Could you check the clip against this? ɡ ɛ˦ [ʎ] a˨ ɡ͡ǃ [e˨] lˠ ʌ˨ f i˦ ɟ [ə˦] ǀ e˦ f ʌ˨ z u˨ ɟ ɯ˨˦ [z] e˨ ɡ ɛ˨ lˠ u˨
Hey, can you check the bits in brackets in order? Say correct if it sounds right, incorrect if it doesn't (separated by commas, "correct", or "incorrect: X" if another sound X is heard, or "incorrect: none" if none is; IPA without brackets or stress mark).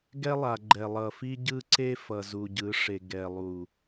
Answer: incorrect: lˠ, incorrect: ɛ˨, incorrect: ɯ˦, incorrect: ʂ